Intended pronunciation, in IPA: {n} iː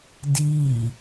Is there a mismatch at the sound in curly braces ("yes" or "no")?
yes